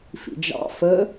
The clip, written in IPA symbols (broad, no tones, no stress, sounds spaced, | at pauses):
f ḭ d͡ʒ ɑ̰ f ə